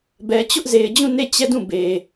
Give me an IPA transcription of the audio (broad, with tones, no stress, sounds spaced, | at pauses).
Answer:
b ɛ˨ t͡ɕ ʊ˦ ʔ z e˨ ɪ̯ d͡ʑ ũ˦˨ n e˦˨ t͡ɕ ɛ˦˨ d ũ˦˨ b e˨